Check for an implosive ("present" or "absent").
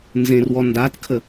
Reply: absent